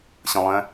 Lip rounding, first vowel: unrounded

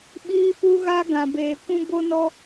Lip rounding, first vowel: unrounded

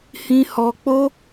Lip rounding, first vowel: unrounded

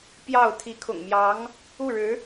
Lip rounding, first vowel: unrounded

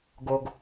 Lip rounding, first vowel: rounded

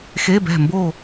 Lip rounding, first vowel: unrounded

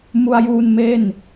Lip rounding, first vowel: rounded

